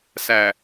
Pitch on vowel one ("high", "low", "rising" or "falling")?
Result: low